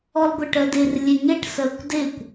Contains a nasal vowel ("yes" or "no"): no